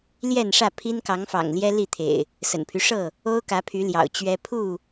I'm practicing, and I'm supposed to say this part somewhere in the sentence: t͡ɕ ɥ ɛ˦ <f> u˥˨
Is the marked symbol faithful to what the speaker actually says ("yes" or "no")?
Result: no